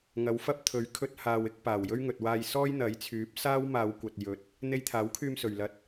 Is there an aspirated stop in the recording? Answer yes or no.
yes